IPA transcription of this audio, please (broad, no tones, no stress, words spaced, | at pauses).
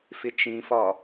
fɪt͡ʃĩfɒ